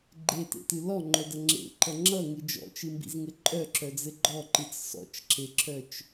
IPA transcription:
ɡ͡ǃ e t ḛ t ɨ l ɔ ŋ͡ǃ œ d ʌ ŋ͡ǁ ḛ ǃ ʌ ŋ͡ǁ ʌ ŋ ɨ d͡ʒ ɔ̰ t͡ʃ ɨ m b ḭ z ŋ ɘ ǃʼ œ ǁ œ d͡z ɘ ɡ͡ǃ ɔ ǃ ɨ t͡s s ɔ̰ t͡ʃ ǁ e ǁ œ t͡ʃ

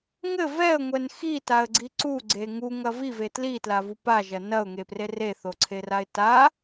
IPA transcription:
ŋ ɘ v ɛ ə̯ ŋʷ ɛ n x i t a ə̯ ɡ͡ǀ i ǀ u ɡ͡ǀ e ŋ u ŋ ɐ v i v e t l i t l a v u p a ʒ ɐ n ɐ ʊ̯ ŋ e p r e r e θ o ǀʰ e r a ɪ̯ t a

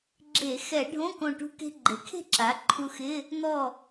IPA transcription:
ɡ͡ǁ e˧˩˧ x ɛ˧˩˧ ɖʱ õ˧˥˧ k õ˧˩ ʈ ṳ˧ k e̤˧ ɡ͡ǃ e˩˥ kʰ e̤˥˨ ǁ a˩˥ ǃʰ u˧ x ɪ˧˥˧ | n̪ ɔ˧˩

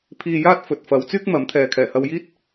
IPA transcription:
pʰ iː˧ j aː˥ t̚ f ɵ˨ t̚ f ɐ˨˧ w t͡s yː˥ k̚ m ɐ˨˥ m t̪ʰ ɛː˨ kʰ ɛː˨˩ h ɐ˧ w j iː˥ t̚

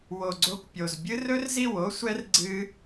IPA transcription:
w o˨ ɡ͡ǀ o˧ kʷ pʲ o˨ z bʲ ɨ˦ r ɵ˦ r z i˦˨ w o˦ sʷ ɛ˦ r ɡ͡ǀ ɨ˦

